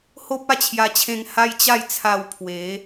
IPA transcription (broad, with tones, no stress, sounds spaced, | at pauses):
h o˦ p̚ a˥˧ t͡ɕʰ j a˧ t͡ɕʰ ẽ˧ ŋ h a˦ j t͡ɕ a˥˧ j t͡sʰ a˧ w pʰ w e˨˦